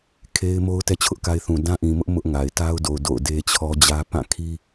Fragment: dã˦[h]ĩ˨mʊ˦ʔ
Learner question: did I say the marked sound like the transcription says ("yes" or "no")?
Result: no